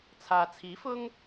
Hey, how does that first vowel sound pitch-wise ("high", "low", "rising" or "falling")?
low